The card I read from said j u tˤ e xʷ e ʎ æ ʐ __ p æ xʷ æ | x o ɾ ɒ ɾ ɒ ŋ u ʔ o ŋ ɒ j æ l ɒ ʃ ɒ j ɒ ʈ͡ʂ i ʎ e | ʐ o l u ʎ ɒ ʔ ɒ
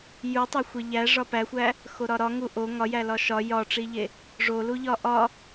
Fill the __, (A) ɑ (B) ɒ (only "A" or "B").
B